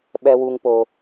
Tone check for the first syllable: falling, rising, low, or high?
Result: low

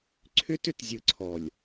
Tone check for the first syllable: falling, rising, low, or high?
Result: high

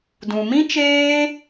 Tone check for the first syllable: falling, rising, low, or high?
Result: low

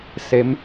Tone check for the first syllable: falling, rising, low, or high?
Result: rising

